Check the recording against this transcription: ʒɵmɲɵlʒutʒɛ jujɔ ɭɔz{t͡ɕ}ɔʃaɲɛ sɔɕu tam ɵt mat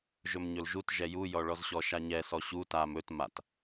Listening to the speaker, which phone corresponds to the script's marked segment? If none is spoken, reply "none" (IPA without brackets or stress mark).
ɕ